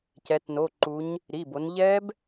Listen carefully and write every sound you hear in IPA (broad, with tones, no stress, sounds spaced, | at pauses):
c ɛ˩˧ t n o˩˧˩ ǃ u˩˧ ɲ | ɾ i˩˧˩ b o˩˧ n ʎ ɛ˦˥ b